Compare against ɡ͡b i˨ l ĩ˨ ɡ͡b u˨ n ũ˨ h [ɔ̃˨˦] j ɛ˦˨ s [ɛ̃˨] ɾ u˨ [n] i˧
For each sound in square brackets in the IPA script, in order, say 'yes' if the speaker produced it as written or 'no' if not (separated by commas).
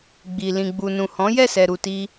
yes, no, no